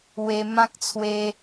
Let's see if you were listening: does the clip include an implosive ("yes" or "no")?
no